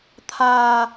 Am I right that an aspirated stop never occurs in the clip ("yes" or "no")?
no